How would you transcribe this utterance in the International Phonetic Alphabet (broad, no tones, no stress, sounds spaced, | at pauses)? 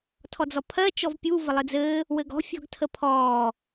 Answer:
tʰ ɔ d͡z ɔ pʰ ɜ t͡ʃ ɔ v pʲ u v ə lˠ ɘ d͡z ɘː | w ɘ ɡ ɔ̤ fʲ ɔ̤ ɡ tʰ ə pʰ ɔː